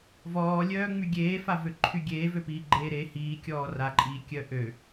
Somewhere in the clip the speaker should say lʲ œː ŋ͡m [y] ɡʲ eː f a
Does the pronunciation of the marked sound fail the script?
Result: no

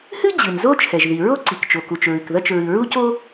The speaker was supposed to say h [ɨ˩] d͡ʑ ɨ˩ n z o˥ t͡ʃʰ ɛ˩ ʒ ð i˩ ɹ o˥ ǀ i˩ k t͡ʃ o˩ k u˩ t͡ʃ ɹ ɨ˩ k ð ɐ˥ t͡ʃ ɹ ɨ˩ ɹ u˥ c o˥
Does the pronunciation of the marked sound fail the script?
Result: yes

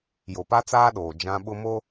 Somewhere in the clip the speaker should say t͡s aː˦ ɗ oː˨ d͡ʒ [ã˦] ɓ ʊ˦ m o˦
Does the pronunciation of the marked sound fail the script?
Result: no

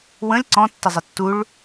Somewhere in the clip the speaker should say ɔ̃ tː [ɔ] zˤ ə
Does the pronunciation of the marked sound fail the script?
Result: yes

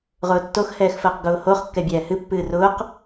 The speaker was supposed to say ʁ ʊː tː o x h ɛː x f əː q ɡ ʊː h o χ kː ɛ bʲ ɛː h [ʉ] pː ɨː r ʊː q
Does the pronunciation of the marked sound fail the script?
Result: yes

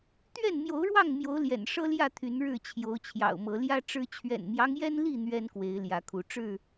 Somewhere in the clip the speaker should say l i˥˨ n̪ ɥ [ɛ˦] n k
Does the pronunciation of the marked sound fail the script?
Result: no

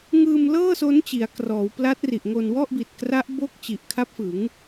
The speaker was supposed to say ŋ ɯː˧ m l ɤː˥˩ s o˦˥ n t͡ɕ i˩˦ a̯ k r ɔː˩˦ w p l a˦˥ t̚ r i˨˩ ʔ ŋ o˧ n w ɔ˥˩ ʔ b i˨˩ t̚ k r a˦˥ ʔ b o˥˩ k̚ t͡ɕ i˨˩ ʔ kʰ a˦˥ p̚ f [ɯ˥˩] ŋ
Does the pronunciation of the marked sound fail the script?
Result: yes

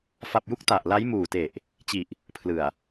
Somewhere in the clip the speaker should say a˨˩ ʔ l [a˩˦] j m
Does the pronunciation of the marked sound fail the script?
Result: yes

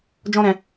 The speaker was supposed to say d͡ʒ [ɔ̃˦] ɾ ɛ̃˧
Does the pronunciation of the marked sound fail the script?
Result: no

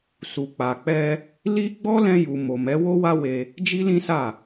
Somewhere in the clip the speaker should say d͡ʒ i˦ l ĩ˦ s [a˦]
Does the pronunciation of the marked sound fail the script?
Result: yes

